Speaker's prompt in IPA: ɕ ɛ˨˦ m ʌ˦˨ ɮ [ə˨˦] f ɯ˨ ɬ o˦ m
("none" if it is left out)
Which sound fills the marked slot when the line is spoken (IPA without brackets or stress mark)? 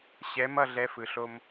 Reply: ɛ˨˦